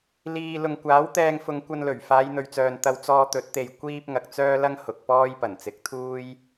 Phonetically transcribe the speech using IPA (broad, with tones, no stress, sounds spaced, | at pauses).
l iː˨ l ʊ˨ ŋ kʷ aː˨˥ w t̪ ɛː˧ ŋ f ʊ˨˧ ŋ kʷ ɐ˧ n l ɵ˨˩ ɥ f aː˨˧ j n̪ ɵ˨ ɥ t͡s œː˨ n t̪ ɐ˧ w t͡s ɔː˧ t̪ ɵ˨˥ t̚ t̪ e˨ j kʷ iː˥ p̚ ŋ ɐ˨ k̚ t͡s œː˥ l ɐ˥ ŋ h ʊ˨ k̚ p ɔː˥ j p ɐ˨˩ n t͡s ɪ˨˥ k̚ t̪ʰ uː˥ j